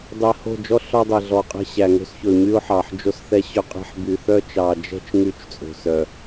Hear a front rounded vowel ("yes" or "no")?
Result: yes